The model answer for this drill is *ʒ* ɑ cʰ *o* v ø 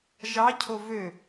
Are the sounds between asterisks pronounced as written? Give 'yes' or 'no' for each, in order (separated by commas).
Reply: yes, yes